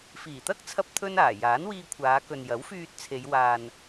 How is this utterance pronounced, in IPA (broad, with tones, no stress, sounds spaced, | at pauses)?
f iː˨˩ t̪ ɐ˥ k̚ t͡sʰ ɐ˧ p̚ t̪ʰ ɵ˥ n aː˨˩ j aː˨˥ n w iː˧ kʷʰ aː˨˧ k ɵ˨ n j ɐ˨˥ w f yː˧ t̚ t͡sʰ e˨˧ j w aː˧ n